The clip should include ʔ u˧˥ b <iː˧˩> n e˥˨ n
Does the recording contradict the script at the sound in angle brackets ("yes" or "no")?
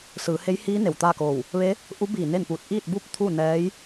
no